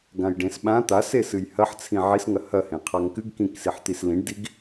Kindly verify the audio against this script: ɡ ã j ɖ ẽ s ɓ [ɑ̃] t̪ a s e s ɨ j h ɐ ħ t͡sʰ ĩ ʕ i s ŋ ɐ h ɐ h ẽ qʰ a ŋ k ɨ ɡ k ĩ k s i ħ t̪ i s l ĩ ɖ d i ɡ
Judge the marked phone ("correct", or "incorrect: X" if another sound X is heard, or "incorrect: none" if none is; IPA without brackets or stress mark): incorrect: ã